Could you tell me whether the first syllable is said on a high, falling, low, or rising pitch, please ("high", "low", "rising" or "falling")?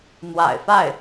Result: low